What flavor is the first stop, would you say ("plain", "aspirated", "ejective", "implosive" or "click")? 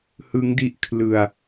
plain